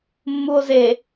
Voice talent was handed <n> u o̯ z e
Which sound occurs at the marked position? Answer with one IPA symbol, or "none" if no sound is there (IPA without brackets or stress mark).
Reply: mː